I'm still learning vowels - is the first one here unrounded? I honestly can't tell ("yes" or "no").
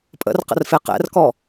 yes